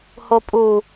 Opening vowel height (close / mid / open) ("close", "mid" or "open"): mid